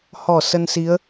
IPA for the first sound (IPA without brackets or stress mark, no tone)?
h